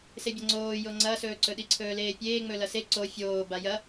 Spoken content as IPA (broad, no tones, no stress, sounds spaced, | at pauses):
s e bʲ ɐ ŋ͡ǀ oː j o ŋ͡ǀ ɐ s ɵː ǀ ɵ ɗ i ǀʰ ɵː l eː pʲ eː ŋ͡m ɵ l ɐ s e ǀ o fʲ oː b a j ɐ